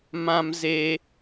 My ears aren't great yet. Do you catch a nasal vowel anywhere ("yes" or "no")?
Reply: yes